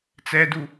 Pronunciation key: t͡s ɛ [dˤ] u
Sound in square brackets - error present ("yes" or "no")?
yes